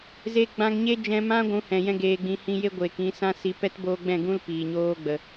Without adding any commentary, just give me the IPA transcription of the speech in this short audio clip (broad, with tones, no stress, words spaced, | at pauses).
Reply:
ze˧ɡ͡bã˧ŋɲe˦ d͡ʒɛ̃˧mã˦ ɡʷũ˨˦hɛ̃˨ jɛ̃˦ɡeː˧ɡ͡bĩ˧ hĩ˧je˦ ɡʷeː˨kĩ˧ sã˧si˨ pɛ˦t boː˧ɡ͡bɛ̃˦˨ɡũ˦l piː˨ɲoː˦ɡ͡bə˨